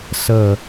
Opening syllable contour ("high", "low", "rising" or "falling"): low